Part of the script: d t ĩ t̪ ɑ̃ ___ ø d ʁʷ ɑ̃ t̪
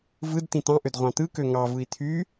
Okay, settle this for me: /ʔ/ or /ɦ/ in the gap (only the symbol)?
ʔ